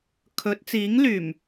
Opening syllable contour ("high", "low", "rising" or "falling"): rising